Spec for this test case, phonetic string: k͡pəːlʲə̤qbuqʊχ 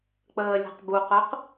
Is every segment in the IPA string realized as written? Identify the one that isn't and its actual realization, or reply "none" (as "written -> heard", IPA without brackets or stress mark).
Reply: χ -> q